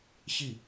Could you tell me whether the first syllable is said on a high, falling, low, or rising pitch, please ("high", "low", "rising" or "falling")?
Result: falling